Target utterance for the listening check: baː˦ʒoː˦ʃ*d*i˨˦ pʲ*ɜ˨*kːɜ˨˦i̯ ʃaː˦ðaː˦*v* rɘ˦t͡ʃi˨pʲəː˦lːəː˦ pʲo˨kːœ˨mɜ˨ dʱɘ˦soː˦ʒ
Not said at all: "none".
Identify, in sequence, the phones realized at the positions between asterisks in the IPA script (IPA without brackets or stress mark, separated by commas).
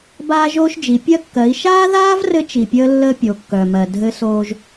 d͡ʒ, ɜ˦, v